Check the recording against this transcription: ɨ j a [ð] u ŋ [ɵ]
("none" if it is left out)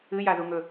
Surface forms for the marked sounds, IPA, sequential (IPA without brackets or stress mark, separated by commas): ð, ɵ